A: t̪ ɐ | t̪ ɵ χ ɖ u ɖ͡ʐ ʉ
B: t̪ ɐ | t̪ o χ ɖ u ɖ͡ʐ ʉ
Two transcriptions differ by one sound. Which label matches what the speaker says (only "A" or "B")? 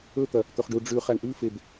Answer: A